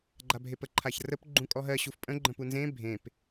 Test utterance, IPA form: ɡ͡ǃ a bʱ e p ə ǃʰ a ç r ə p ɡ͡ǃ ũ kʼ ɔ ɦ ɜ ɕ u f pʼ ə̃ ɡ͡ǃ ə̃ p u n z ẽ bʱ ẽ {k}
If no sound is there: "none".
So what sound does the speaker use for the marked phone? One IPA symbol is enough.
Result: p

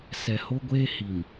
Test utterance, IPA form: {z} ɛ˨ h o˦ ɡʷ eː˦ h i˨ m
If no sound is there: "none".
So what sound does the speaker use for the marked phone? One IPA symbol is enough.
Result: s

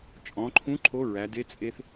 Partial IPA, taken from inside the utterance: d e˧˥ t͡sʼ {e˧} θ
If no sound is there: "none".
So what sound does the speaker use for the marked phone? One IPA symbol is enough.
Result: e˧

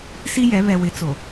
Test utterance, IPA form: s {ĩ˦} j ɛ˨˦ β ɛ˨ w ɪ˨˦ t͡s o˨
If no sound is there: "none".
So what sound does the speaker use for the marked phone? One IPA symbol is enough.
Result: i˦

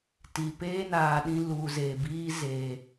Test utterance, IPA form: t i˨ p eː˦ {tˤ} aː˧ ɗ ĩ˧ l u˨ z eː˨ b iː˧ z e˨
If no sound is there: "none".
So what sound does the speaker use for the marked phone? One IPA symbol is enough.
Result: n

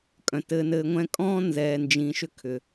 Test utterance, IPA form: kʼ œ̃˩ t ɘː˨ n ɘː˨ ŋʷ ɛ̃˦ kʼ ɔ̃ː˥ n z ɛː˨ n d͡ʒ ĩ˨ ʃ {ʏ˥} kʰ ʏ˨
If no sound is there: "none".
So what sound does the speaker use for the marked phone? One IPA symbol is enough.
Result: ʏ˥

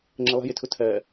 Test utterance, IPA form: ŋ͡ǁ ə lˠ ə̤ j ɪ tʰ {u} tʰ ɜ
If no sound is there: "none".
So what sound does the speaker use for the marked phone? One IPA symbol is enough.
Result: ʊ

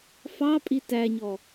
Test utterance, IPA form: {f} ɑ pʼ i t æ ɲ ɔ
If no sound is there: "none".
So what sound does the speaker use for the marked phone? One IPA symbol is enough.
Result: f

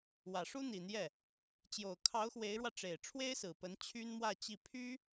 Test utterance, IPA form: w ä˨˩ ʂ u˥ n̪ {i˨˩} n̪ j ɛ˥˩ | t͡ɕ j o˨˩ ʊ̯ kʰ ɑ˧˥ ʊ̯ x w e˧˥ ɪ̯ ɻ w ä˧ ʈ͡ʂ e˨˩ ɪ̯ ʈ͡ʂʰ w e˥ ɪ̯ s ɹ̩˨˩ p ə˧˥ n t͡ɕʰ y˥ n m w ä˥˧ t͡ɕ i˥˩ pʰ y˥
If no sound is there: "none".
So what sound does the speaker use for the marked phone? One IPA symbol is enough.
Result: i˨˩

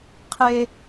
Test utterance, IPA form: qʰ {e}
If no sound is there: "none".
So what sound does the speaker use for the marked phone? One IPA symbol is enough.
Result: e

